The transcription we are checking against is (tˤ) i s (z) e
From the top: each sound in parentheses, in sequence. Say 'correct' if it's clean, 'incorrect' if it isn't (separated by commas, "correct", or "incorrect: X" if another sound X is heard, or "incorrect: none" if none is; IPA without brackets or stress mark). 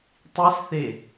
correct, incorrect: θ